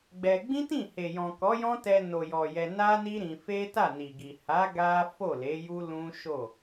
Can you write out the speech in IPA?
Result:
ɡ͡bɛ˧ ɡ͡bĩ˦tĩ˦˨he˨ jɔ̃˨kɔ˨˦jɔ̃˦ tɛ˧no˨jɔ˨ jɛ˧ na˦ni˦ ɾĩ˧ fe˦ta˦˨ni˨ɡi˨ ha˨˦ ɡa˦ fo˦˨le˨˦ju˦ lũ˦ʃo˦˨

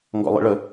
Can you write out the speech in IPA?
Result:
ŋɡɔ̰lˠḭɭə

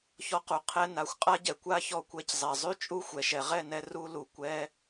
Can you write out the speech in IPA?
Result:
çɔ˧qu˨ qʰɛ˧ na˨˦xʷqʼa˦ɟɛ˨ kʷa˦çɔ˦˨ kʷɛ˧c zˤɛ˨ zˤy˦t͡ʃʼu˦ xʷɛ˨ʃɛ˨ ʁɛ˦˨nɛ˧ ru˧ lu˨ kʷɛ˦

